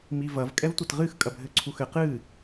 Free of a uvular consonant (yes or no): no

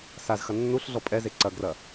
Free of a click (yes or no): no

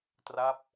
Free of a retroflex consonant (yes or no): yes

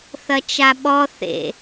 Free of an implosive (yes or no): no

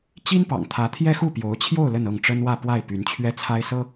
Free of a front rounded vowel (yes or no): no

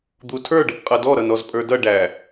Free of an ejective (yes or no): no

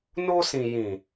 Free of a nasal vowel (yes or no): no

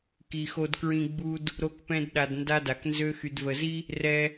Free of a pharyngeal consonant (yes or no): yes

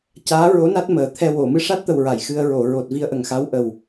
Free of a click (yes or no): yes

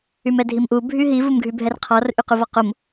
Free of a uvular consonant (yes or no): no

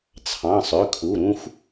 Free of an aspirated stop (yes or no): no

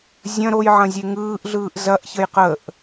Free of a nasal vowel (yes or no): no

